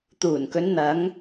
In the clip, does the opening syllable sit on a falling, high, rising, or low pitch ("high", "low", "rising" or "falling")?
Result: low